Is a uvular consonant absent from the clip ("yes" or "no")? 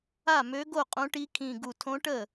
no